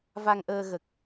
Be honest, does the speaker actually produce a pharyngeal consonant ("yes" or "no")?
no